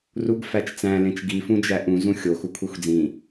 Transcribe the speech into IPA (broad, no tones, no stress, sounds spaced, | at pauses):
r u ɡ f æ t͡ʃ t͡s æ̃ l ẽ t͡ʃ ɡ i f ũ d͡ʒ æ ʔ ũ z ũ xʲ o x u kʷʰ e xʷ d͡z ĩ